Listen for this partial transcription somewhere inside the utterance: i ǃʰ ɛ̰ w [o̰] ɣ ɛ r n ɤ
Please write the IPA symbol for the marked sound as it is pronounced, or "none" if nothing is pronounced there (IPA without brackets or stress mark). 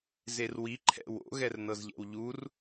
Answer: o̰